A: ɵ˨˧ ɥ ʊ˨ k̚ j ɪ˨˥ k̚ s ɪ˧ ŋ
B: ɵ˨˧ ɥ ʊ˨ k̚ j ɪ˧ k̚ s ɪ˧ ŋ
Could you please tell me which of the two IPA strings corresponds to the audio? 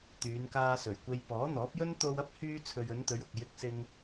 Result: B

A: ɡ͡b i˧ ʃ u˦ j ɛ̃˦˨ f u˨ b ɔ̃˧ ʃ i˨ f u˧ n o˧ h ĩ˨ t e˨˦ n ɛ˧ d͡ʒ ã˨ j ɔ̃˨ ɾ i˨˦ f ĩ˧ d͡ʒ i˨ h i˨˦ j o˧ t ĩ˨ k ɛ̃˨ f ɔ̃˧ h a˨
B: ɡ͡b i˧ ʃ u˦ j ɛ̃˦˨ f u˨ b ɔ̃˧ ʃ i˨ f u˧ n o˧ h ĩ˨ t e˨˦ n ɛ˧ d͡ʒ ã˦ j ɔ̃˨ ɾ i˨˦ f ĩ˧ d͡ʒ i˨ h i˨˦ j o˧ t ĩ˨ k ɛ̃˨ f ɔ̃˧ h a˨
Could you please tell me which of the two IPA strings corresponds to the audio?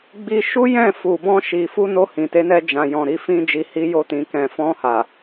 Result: A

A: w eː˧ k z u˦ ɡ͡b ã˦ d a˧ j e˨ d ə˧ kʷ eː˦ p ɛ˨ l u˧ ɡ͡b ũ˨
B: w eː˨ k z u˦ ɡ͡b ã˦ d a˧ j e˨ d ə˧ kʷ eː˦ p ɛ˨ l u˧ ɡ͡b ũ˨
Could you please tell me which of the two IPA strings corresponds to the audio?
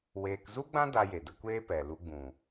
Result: A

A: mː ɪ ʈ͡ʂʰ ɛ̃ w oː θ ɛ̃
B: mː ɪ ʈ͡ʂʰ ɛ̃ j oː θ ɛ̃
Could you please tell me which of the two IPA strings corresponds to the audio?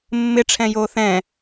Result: B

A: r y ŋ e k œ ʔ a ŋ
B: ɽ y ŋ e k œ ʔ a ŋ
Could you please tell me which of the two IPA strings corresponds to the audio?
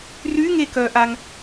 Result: A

